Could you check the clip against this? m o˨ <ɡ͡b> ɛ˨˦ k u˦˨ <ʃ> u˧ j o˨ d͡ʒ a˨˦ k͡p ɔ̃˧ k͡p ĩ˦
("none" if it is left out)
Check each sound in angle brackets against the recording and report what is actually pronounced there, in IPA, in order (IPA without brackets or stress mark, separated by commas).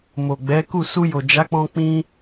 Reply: ɡ͡b, s